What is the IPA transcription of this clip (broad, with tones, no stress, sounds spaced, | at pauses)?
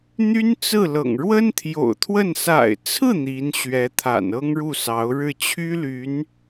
n̪ y˥ n t͡s ɹ̩˥˩ l ɤ̰˨˩ ŋ ɻ w ə˥ n t̪ʰ j o̰˨˩ ʊ̯ t̪ʰ w ə˥˩ n s a̰˨˩ ɪ̯ t͡sʰ ɹ̩˥˩ n̪ i˧˥ n ɕ ɥ ɛ˧˥ t̪ʰ a̰˨˩ n ɤ˥ ŋ ɻ u˥˩ s ɑ˧˥ ʊ̯ ɻ ɻ̩˥˩ t͡ɕʰ y˥ l y˧˥ n